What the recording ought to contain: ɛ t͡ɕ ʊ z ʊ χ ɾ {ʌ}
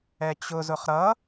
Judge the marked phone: correct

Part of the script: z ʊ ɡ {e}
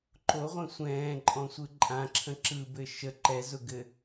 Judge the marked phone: incorrect: ɘ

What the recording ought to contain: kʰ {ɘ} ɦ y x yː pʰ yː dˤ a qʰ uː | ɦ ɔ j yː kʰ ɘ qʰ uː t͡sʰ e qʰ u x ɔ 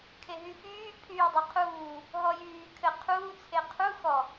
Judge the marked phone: incorrect: e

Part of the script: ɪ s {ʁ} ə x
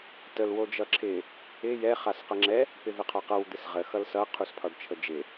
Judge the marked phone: correct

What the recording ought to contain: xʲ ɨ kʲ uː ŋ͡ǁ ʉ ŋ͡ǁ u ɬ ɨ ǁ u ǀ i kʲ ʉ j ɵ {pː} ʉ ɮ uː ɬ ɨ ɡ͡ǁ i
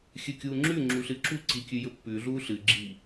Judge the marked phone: correct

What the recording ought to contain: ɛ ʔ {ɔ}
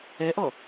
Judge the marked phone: correct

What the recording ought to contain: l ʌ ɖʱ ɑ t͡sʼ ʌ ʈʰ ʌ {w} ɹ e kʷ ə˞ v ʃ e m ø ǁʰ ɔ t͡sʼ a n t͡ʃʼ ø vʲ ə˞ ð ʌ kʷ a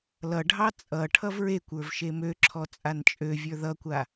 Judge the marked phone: incorrect: v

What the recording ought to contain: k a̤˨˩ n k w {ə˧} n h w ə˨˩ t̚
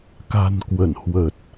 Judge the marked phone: incorrect: ə˧˩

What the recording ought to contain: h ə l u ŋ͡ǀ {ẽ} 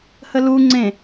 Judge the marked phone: correct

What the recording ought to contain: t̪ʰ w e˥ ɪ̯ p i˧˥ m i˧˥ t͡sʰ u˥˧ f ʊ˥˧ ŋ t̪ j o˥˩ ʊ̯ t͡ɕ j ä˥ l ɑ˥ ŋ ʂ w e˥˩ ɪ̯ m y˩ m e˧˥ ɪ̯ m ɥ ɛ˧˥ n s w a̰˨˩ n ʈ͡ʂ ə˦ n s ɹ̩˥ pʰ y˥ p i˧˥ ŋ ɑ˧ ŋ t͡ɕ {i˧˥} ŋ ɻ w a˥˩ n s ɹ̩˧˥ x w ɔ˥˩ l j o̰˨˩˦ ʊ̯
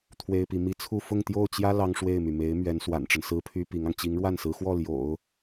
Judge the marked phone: correct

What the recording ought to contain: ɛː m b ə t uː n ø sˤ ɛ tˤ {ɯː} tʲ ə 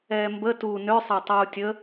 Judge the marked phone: incorrect: uː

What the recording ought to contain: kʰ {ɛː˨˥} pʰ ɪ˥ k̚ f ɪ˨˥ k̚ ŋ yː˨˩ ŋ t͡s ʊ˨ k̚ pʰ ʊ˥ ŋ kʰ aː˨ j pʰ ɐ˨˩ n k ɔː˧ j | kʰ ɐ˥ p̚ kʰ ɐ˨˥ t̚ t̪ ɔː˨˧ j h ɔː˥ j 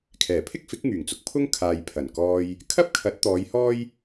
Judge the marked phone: incorrect: ɛː˨˩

